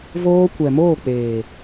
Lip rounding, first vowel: rounded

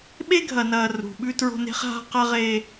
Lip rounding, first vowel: unrounded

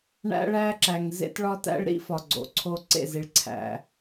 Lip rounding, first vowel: unrounded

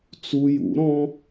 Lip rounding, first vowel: rounded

